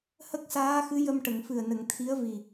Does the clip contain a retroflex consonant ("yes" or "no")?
yes